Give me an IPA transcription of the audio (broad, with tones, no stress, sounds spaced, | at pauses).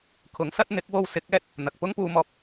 kʰ ʊ˨˥ ŋ s ɐ˥ t̚ n̪ ɪ˨˥ k̚ w o˧ w s ɪ˨˥ k̚ ɛː˧ t̚ | n̪ ɐ˨ k̚ p ʊ˥ ŋ p uː˧ m ɔː˧ p̚